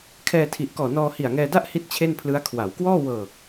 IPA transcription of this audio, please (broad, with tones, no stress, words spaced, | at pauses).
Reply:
kʰɛː˧tʰi˨˩ʔkɔː˨˩nɔː˧ hi˨˩a̯ŋɛː˧da˥˩ʔ hi˥˩t̚t͡ɕʰe˥˩npʰlɯ˦˥a̯ kʰwa˩˦wkwɔː˥˩ wɤː˨˩k̚